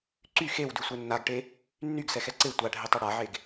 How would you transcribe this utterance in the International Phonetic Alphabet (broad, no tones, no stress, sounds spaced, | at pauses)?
ǀ y x e w d y sʷ ɛ nː a ɡ ʈ e | nː y ɡ s ɛ x ɛ ǀ e tʷ a ɖʱ e tˤ e ɽ a ʕ e ɡ